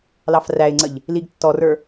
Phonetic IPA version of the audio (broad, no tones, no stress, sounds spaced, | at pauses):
l ɑ f r æ ɪ̯ ŋ͡ǀ ə ʎ | l i ɡ tː ɔ r ə˞